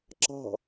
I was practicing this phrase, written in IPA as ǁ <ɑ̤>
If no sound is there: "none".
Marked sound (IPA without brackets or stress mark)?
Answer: ɑ̤